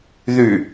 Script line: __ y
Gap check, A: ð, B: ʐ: A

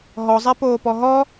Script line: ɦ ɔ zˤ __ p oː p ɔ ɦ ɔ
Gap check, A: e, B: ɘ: A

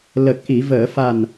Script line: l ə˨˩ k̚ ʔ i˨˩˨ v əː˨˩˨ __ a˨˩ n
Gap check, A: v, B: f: B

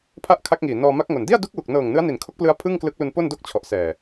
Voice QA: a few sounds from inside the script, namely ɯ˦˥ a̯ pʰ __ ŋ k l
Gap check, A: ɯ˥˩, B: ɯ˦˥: A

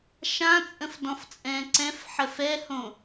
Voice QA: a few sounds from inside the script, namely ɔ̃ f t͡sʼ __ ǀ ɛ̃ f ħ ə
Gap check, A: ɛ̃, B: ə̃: A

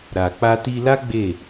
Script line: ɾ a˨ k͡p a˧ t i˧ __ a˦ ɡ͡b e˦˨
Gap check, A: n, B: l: B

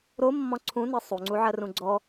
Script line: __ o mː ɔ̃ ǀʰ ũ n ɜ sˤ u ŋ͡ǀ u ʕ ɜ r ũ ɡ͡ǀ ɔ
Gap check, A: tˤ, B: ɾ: B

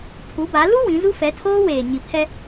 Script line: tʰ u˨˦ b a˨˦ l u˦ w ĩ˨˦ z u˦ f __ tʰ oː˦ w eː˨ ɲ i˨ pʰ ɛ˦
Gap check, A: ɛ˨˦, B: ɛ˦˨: A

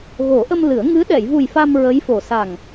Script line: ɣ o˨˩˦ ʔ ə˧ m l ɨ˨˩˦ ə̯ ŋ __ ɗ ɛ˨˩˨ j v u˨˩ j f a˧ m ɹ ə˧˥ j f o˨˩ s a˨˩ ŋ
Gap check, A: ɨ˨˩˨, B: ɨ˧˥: B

